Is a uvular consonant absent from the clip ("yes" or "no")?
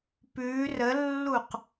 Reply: no